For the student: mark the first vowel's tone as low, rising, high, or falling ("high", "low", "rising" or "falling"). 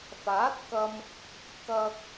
rising